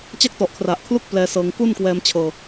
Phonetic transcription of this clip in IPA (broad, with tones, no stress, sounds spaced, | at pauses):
t͡ɕ a˥˩ k̚ t ɔ˨˩ ʔ kʰ r a˨˩ ʔ kʰ l u˥˩ k̚ p l ɛː˧ s ɤː˧ ŋ k u˥˩ n k w ɛː˧ m t͡ɕʰ ɤː˧